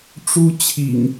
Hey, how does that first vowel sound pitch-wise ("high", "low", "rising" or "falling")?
high